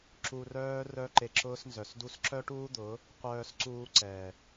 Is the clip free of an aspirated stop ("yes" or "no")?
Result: yes